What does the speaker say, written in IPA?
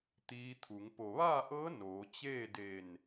t̪ iː˧ t̪ʰ u˩˧ ŋ p o˩ ʋ aː˥˨ ʔ ɤː˧˥ n oː˩˧ t͡ɕ eː˥˨ d e˧˩ n

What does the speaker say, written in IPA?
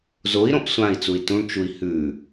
z o i̯ ɾ õ ʔ sʷ ã i̯ t͡s u i̯ t ũ ɳ t͡ʃ u i̯ h ʉ

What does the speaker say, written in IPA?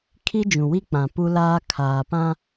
kʰ i˦ d͡ʒ ũ˨ w i˦ k͡p ã˨ p u˦ l aː˦ kʰ aː˨ p ã˦

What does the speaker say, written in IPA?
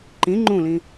ǃ ĩ ŋ͡ǃ ũ l ĩ

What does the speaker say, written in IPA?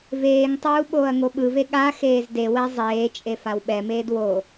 v eː ŋ tˤ uː ɓ oː ɐ̯ ŋ o ɓ ɯ v e ɠ a x eː z d e w ɛ zˤ eː t͡ʃʼ e f a w ɓ ɛ m eː d w o

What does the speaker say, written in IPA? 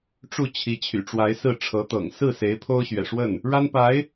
ʈ͡ʂ u˥˩ t͡ɕʰ i˧˥ t͡ɕʰ y̰˨˩ ʈ͡ʂ w a˧˥ ɪ̯ s ɹ̩˥˩ ʈ͡ʂʰ ɤ˧˥ t̪ ɤ̰˨˩ ŋ s ɹ̩˥˩ s e˧˥ ɪ̯ pʰ o˥ ʊ̯ ɕ ɥ ɛ̰˨˩ ʂ w ə˥˩ n | ɻ a˥ n p a˧˥ ɪ̯

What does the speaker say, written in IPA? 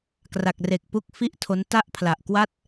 k r a˨˩ k̚ r e˨˩ k̚ p u˦˥ k̚ f i˥˩ ʔ tʰ o˦˥ n t a˥˩ ʔ pʰ l a˨˩ ʔ k w a˥˩ t̚

